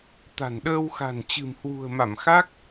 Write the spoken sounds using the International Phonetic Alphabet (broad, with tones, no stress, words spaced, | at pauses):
t̪a̤˨˩nɗəː˧wxa̤˨˩n t͡ɕɨ̤˨˩mhwṳ˨˩ə̯ma˧˩m xa˦˥k̚